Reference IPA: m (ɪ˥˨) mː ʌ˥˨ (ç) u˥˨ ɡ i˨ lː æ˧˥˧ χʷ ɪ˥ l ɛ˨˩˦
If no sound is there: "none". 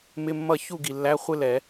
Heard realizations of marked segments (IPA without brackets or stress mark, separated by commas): ɪ˧˥˧, ç